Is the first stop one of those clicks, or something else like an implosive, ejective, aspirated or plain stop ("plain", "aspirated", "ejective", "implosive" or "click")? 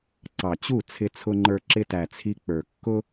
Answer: click